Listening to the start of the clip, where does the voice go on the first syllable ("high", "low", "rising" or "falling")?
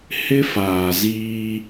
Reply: high